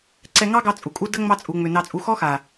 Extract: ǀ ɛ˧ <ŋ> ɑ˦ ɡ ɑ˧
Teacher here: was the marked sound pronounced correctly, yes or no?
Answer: yes